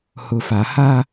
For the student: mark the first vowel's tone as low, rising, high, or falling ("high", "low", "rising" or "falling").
low